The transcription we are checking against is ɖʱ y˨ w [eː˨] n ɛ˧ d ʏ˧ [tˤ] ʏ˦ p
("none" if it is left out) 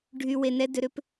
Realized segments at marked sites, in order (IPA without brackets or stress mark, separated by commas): e˨, ɾ